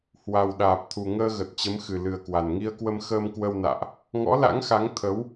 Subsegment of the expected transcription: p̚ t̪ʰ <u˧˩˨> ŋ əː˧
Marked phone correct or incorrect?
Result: incorrect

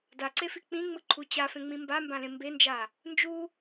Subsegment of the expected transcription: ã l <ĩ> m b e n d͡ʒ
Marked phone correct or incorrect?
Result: incorrect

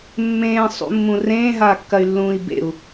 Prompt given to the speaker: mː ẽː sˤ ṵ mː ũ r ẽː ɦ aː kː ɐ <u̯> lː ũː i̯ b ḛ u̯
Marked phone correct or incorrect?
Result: incorrect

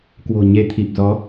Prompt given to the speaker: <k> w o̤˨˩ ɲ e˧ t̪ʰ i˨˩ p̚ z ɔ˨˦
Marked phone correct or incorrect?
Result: correct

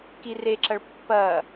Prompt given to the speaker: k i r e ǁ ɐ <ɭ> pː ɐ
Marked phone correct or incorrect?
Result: correct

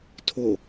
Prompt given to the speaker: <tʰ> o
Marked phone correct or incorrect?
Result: correct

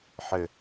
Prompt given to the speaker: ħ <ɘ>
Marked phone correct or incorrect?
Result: correct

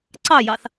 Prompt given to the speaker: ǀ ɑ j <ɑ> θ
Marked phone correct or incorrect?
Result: correct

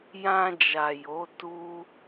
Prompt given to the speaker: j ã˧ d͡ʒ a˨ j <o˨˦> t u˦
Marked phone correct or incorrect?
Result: correct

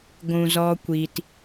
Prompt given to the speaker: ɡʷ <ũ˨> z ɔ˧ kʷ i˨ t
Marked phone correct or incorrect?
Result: correct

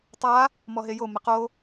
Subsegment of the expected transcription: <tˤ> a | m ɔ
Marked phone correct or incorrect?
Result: correct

